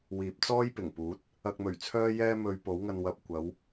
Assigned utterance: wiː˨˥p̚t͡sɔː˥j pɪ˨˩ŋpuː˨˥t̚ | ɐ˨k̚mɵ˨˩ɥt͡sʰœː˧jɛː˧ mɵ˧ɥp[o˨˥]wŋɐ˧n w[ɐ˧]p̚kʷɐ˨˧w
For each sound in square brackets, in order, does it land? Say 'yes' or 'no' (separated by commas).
yes, no